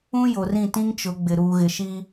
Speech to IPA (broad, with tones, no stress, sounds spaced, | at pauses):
ũ˦ j o˨ r ĩ˦˨ t ĩ˦ ŋ t͡ʃ ʊ˨˦ ɡ͡b ɪ˨ ɾ uː˨ ɣ ɪ˨ ʃ i˦